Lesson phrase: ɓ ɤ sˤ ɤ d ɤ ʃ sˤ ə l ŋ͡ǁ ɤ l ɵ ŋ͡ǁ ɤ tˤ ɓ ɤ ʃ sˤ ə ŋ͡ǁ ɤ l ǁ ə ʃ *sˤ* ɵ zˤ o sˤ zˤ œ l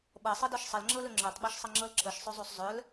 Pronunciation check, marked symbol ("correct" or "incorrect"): correct